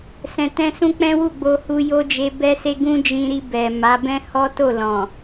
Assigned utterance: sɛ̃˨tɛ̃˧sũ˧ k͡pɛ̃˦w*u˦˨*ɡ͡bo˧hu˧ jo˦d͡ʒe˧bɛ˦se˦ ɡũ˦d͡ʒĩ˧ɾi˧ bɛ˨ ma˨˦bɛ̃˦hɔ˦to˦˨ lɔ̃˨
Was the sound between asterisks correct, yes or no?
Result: yes